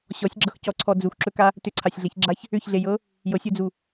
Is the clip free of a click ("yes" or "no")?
no